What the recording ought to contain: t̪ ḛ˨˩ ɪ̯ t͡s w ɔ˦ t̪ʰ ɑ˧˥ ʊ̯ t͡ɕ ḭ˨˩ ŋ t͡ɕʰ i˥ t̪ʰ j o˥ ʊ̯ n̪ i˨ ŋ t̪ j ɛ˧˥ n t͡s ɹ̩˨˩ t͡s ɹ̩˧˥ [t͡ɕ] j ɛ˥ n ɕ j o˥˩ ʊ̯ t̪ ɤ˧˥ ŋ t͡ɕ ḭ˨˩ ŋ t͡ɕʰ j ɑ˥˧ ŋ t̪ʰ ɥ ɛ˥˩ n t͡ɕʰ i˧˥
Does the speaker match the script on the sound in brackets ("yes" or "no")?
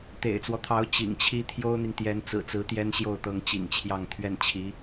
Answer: no